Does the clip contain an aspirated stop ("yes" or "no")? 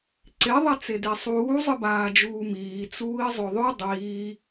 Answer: no